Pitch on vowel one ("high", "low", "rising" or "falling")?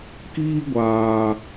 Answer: high